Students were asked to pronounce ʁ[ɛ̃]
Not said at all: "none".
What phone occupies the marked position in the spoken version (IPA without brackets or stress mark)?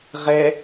ɛ